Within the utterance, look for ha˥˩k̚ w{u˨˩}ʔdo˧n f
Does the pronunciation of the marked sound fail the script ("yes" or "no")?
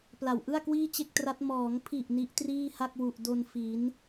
no